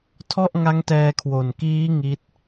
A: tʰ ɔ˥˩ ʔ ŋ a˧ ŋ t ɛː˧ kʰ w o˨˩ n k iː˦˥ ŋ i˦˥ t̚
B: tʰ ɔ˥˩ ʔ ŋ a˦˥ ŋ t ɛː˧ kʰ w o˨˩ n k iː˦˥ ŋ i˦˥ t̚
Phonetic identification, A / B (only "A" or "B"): B